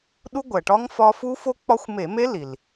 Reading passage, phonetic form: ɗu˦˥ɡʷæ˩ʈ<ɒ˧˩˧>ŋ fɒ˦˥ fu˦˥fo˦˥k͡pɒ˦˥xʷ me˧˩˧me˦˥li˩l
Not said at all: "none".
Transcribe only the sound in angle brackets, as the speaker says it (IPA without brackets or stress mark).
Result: ɒ˦˥